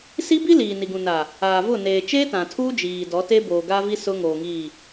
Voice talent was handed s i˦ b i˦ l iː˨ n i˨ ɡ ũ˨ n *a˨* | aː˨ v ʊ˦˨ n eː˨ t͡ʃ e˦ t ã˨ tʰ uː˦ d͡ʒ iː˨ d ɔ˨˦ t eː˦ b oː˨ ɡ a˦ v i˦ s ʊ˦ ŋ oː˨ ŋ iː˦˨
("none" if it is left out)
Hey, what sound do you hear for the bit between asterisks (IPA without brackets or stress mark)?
a˨